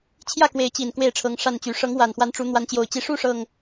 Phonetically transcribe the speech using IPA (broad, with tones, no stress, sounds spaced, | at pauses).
t͡ɕʰ j ä˥˨ k w e˨˦ ɪ̯ t͡ɕ i˨˩ n k w e˥˨ ɪ̯ ʈ͡ʂʰ ɤ˨˦ ŋ ʂ a˥˨ n t͡ɕ y˨˦ ʂ ɤ˨˦ ŋ w a˨˩ n x w a˨˦ n ʈ͡ʂ u˨˦ n̪ w a˨˦ n t͡ɕ j o˨˩ ʊ̯ t͡ɕ i˨˦ ʂ u˥˨ ʂ ɤ˨˩ ŋ